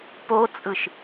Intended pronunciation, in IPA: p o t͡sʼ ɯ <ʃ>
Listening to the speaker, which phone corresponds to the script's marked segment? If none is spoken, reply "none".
ʃ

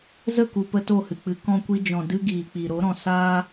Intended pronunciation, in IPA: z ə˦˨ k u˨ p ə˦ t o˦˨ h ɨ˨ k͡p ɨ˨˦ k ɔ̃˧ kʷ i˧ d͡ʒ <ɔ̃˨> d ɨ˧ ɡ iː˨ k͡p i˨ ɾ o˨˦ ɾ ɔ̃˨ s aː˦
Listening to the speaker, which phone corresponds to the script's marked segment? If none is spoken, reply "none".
ɔ̃˨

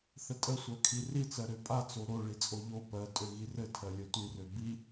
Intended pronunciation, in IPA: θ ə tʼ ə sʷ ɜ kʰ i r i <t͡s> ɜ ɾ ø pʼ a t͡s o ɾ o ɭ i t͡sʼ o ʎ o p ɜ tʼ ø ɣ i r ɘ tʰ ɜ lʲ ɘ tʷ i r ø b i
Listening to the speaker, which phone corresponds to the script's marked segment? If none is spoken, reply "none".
t͡s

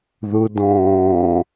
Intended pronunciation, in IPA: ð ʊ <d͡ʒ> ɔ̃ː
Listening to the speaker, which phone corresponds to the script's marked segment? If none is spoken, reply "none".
d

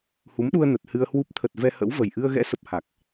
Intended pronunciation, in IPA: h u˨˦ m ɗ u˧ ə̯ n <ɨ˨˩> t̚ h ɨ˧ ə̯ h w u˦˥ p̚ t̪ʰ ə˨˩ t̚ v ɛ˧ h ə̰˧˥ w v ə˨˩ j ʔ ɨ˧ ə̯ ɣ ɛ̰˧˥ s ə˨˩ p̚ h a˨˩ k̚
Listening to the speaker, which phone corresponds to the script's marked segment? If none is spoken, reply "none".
ə˨˩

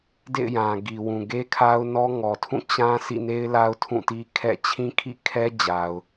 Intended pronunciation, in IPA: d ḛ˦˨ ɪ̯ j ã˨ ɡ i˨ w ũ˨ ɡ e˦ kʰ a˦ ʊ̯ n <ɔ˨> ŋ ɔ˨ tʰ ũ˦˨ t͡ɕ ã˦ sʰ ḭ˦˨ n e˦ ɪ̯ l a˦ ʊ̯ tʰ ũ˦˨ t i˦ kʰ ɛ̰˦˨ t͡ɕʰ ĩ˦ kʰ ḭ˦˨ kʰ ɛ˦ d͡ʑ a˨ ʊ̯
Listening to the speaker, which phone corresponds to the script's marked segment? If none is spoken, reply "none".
ɔ˦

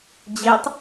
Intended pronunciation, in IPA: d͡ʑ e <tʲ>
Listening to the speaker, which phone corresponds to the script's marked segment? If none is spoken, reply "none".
tˤ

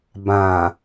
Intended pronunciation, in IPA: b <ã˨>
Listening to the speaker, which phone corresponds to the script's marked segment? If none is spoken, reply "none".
ã˨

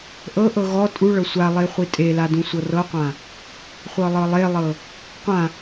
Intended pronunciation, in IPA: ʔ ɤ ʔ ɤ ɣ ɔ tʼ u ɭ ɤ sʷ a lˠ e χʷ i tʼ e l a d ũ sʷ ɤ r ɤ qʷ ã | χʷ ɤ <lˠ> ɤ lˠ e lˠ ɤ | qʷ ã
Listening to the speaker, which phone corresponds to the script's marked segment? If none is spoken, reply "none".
lˠ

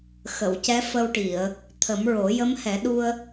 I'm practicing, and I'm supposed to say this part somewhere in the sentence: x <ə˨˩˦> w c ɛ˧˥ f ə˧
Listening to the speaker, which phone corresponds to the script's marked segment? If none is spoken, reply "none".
ə˨˩˨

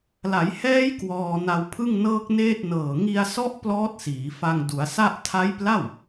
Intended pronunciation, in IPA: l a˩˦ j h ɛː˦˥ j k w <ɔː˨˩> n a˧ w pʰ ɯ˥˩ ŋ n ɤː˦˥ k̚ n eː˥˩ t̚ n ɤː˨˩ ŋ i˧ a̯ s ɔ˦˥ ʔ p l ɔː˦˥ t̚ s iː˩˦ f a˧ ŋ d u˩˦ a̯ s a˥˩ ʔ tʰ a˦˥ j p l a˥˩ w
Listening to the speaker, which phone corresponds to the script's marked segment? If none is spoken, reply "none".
ɔː˧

